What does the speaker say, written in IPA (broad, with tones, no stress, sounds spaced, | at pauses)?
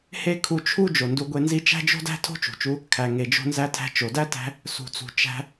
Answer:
h e˥ kʰ u˧ t͡ʃʰ u˥ d͡ʒ o˩ n d u˧ ɡʷ e˧ n z i˥ t͡ʃ æ̤˥ d͡ʒ o̤˥ d æ̤˥ tʰ o̤˥ t͡ʃ ṳ˩ t͡ʃ u˧ | kʰ æ˩ ŋ e˩ d͡ʒ o̤˧ n z æ˧ tʰ æ̤˧ t͡ʃ o˩ d æ˥ t æ̤˧ | s ṳ˩ t͡s ṳ˩ t͡ʃ æ̤˧